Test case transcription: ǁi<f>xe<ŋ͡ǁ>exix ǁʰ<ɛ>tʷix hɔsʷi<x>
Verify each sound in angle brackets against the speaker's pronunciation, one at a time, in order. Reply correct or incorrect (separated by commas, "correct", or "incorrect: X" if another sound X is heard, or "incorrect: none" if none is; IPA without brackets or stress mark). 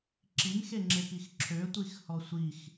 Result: incorrect: m, correct, incorrect: ø, correct